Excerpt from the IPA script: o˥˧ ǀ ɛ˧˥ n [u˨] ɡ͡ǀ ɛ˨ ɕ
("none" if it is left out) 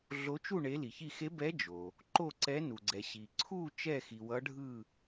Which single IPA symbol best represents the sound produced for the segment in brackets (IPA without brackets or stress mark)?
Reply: u˨